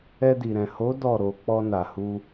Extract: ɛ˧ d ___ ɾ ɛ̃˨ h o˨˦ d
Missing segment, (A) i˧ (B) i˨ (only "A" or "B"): B